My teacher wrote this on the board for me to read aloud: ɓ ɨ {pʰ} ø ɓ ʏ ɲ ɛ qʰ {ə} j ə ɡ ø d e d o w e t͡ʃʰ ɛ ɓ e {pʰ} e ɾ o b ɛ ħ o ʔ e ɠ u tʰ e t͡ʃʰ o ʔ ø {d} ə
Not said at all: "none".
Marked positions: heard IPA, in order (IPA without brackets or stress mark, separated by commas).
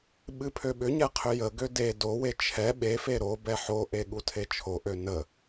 pʰ, ʏ, f, n